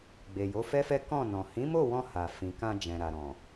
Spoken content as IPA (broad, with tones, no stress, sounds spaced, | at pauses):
ɡ͡b e˨ j o˨˦ f ɛ˦ f ɛ˦ k ɔ̃˦˨ n ɔ̃˨ h ĩ˨˦ m o˦˨ w ɔ̃˧ h a˨ f ĩ˨ k ã˧ d͡ʒ ɛ̃˨ ɾ a˨ ɾ ɔ̃˨